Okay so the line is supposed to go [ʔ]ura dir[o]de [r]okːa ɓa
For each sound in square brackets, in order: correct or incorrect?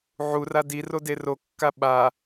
incorrect: ʕ, correct, correct

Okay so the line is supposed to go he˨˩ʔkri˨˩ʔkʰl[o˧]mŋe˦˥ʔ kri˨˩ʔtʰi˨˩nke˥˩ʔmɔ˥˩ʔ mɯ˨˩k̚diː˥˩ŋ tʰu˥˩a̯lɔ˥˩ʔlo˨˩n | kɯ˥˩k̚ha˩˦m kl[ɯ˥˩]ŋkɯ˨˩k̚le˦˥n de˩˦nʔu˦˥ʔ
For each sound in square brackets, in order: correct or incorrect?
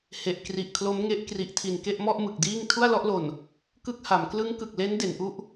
incorrect: o˦˥, incorrect: ɯ˦˥

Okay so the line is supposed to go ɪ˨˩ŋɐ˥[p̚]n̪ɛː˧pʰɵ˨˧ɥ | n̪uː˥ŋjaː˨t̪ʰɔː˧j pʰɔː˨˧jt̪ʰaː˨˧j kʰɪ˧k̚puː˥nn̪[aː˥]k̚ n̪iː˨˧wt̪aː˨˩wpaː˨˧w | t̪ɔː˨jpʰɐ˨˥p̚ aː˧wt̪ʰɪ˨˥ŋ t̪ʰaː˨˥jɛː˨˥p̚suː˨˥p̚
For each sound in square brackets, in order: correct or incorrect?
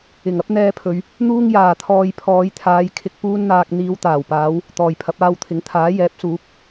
correct, incorrect: aː˧

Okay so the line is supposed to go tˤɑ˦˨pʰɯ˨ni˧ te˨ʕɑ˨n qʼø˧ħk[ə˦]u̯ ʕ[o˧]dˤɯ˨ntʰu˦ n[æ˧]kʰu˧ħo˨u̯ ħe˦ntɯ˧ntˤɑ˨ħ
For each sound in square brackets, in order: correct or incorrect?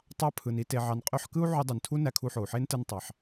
incorrect: ɯ˦, incorrect: u˧, correct

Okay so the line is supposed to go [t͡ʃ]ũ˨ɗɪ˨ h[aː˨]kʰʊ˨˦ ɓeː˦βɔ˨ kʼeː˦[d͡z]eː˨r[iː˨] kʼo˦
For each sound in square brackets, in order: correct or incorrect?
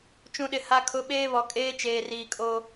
correct, incorrect: a˨, incorrect: t͡ʃ, correct

